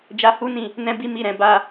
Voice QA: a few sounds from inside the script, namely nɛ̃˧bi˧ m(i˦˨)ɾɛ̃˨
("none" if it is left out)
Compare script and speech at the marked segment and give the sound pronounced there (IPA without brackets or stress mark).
i˨